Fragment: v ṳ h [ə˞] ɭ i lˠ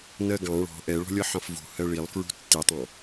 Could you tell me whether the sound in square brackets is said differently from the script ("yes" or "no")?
yes